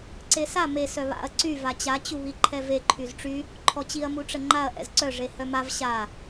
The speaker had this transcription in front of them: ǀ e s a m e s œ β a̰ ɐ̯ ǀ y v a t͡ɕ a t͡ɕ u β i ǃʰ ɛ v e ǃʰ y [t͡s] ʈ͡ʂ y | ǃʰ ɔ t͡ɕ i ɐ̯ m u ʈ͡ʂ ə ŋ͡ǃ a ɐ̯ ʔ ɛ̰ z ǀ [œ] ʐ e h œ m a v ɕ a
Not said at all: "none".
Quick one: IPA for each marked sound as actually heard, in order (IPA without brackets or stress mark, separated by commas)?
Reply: z, œ